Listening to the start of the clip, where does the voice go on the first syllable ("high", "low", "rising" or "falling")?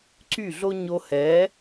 falling